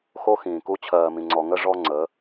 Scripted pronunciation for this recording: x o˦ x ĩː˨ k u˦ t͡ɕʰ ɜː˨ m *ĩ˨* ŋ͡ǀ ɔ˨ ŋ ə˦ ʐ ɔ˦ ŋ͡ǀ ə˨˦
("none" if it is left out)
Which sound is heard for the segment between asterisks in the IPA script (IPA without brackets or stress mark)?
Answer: ĩ˨